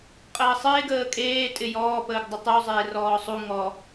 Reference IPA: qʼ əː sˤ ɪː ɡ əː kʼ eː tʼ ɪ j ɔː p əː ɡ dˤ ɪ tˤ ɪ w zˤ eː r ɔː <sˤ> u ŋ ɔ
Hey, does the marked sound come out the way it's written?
yes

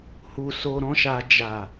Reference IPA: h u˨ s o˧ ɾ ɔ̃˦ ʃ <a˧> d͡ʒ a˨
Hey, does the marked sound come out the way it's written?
yes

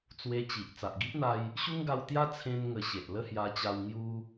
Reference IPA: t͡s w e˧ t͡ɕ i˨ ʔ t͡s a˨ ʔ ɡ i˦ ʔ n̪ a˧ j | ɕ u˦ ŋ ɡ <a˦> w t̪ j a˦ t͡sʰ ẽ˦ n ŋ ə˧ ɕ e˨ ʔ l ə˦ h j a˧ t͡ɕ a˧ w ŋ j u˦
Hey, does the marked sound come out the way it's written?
no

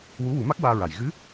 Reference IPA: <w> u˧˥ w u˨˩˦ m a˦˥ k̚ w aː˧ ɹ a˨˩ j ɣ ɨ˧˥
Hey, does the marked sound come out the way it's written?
yes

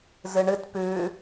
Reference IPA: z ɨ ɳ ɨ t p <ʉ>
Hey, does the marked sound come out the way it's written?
yes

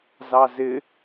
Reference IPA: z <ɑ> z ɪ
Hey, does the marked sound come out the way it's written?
yes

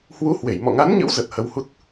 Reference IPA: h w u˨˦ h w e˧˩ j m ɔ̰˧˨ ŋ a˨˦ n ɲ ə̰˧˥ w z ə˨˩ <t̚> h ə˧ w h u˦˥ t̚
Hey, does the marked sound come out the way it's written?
yes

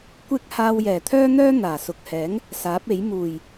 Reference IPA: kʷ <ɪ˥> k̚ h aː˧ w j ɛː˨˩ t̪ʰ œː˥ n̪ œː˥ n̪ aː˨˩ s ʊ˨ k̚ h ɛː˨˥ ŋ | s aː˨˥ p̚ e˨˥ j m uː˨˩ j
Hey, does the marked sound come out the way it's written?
yes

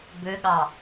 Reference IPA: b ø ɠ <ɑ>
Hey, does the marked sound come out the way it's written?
yes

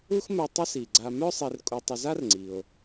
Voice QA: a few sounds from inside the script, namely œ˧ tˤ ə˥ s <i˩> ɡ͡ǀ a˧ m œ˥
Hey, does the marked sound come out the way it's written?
yes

